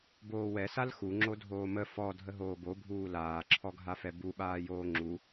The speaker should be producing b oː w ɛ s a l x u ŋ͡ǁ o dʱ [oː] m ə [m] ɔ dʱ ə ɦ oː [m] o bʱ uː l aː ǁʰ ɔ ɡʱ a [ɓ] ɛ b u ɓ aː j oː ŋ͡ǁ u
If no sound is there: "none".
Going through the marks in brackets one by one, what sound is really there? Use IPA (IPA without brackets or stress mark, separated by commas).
oː, f, b, f